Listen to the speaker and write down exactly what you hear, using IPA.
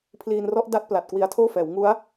pʰ l iː˧ n r ɔ˦˥ ʔ d a˦˥ t̚ p l a˨˩ t̚ k w i˧ a̯ tʰ oː˥˩ f ɛː˩˦ w ŋ u˦˥ a̯

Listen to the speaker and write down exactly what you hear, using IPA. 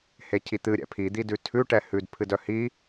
h e cʰ i t̪ ɨ ɾʲ ɛ̰ pʰ i d̪ i d ʉ tʰ ʉ ʈ ɛ h ʉ d pʰ ɨ d œ h i

